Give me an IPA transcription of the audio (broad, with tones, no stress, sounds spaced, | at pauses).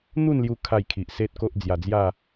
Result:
n̪ u˥˧ n l j u˧ kʰ a˥˧ j kʰ i˨ ʔ s e˦ t̚ k o˦ ʔ d͡z j a˨˩ d͡z j a˥˧